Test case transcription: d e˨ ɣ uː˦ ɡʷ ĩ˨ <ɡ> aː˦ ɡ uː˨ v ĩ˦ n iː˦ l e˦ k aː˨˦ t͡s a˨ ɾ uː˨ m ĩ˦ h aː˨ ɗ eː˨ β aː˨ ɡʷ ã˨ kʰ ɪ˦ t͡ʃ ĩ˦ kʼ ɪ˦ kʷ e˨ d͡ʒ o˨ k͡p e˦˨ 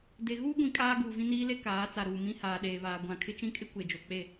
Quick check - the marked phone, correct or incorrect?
incorrect: kʼ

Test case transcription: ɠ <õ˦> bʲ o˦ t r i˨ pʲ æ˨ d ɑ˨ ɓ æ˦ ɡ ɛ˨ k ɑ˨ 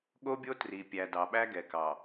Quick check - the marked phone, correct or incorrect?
incorrect: o˦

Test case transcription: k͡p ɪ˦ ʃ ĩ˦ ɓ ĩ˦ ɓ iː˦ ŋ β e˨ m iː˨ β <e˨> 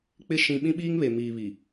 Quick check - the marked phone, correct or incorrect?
incorrect: i˨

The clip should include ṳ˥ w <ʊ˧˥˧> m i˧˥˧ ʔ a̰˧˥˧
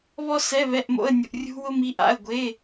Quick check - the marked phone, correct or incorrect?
incorrect: ʊ˥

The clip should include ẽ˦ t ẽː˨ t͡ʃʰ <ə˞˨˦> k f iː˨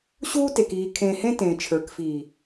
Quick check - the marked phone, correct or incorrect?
correct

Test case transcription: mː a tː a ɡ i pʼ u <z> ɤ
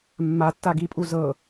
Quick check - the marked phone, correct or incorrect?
correct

